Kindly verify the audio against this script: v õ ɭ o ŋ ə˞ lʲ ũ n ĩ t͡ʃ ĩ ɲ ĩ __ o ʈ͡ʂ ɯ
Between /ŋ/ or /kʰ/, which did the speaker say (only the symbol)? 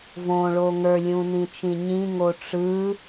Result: ŋ